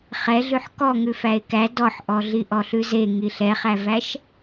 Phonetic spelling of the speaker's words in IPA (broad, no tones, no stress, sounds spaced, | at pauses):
χ ɛ ɮ ʉ ħ k ɔ ŋ ʉ f æ e̯ k æ d ɔ ħ ʔ ɔ ɮ i ʔ ɔ ɬ ʉ z e ŋ i ɬ ɛ χ æ v æ ʃ